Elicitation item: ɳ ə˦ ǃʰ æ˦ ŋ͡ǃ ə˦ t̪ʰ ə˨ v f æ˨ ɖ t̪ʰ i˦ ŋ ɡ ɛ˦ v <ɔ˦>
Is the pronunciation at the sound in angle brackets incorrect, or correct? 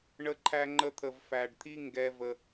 incorrect